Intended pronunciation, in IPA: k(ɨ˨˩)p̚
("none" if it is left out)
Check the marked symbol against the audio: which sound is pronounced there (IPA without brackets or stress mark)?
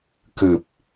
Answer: ɨ˨˩